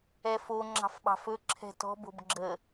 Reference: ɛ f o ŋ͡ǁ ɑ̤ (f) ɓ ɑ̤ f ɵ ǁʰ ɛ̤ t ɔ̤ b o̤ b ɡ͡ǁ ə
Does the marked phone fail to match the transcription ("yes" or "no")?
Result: no